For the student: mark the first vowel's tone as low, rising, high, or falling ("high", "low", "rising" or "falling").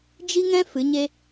high